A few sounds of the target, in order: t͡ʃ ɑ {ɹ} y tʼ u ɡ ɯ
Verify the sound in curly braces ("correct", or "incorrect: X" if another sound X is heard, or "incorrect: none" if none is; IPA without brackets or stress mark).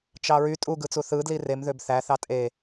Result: correct